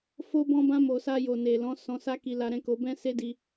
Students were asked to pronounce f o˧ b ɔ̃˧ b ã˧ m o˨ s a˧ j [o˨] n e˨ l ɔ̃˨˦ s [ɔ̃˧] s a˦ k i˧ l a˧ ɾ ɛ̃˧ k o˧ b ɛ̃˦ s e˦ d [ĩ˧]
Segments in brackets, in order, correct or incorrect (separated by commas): correct, correct, incorrect